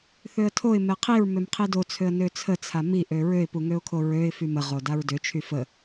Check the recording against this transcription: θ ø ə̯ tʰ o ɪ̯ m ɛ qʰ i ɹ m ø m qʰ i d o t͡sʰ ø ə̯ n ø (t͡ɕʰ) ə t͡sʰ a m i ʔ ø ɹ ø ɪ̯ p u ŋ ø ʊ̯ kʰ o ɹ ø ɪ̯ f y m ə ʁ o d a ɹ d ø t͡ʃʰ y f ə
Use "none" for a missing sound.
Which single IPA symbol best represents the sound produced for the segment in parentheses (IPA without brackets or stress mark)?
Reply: t͡sʰ